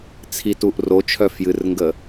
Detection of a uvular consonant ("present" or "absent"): absent